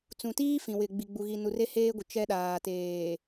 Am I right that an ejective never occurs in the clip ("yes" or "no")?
yes